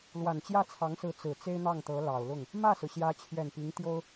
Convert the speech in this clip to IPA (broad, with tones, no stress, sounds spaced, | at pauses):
l w a˨˩ n t͡ɕ j ä˥˩ t͡sʰ ɑ˧˥ ŋ s ɹ̩˧˥ t͡s ɹ̩˨˩ t͡s e˥ ɪ̯ n̪ ɑ˥˩ ŋ t̪ ɤ˧˥ l ɑ˨˩ ʊ̯ l ʊ˥˩ ŋ | m ä˥˩ s ɹ̩˩ ɕ j ä˧˥ t͡ɕʰ ɥ ɛ˨˩ n p i˧˥ ŋ t̪ j o˥ ʊ̯